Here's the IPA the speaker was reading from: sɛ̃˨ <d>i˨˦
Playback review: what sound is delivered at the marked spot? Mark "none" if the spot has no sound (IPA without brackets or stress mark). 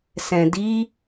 d